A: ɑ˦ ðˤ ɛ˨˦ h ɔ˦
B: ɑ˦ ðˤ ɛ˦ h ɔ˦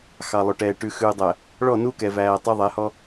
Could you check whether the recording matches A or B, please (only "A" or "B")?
A